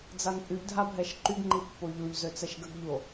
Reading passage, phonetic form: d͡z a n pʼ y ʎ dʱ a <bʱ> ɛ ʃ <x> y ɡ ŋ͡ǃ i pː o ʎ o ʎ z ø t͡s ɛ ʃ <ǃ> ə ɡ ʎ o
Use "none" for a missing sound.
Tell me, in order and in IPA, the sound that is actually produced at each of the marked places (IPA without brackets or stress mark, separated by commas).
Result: bʱ, ǃ, ɡ